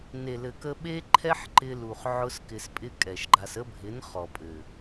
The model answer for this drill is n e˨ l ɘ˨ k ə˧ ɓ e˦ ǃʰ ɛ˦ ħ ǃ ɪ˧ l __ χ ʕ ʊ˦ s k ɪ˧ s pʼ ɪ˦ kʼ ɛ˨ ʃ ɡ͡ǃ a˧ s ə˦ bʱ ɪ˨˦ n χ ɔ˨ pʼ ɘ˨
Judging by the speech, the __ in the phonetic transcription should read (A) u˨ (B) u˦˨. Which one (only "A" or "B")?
A